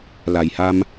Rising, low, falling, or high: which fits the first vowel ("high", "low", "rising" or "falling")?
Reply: low